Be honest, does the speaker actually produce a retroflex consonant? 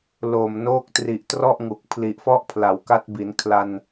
no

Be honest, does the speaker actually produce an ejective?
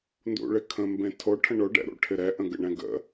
no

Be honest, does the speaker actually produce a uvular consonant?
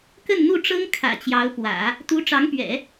no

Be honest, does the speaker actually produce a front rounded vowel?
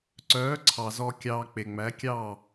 yes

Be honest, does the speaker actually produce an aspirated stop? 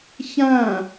no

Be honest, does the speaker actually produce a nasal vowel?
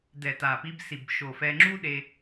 no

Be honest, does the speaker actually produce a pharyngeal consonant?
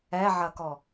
yes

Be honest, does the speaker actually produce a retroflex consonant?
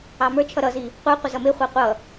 no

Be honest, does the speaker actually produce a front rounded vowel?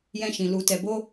no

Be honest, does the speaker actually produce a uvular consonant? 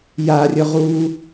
yes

